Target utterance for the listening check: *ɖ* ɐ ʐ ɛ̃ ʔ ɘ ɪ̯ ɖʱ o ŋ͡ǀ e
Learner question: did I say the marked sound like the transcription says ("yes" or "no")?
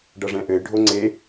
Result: yes